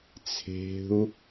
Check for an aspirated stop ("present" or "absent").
present